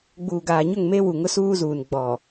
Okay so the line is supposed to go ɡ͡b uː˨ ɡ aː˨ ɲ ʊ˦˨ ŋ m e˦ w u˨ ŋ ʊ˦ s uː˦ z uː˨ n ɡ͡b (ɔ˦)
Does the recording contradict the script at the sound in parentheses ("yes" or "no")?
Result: yes